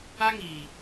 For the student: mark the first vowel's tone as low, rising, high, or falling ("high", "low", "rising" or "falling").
high